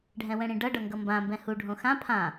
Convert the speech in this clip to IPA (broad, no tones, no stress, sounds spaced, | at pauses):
ɖʱ ɛ̃ w ɛ̃ ɽ ĩ ɖ ʌ ɖ ʌ ŋ ɡ ʌ m b ã m b ɛ̃ h u ɖʱ õ x ã pʰ ã